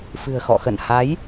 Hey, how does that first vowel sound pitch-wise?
low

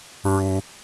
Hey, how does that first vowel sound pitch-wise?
high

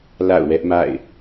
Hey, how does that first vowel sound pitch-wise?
falling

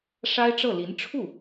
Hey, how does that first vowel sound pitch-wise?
high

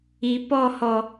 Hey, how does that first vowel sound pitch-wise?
rising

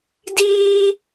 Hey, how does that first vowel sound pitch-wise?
high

